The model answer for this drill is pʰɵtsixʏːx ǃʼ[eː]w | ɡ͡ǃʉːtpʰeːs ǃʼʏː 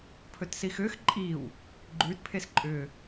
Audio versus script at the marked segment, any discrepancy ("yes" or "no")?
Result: yes